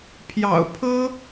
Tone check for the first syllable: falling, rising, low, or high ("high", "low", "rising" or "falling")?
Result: low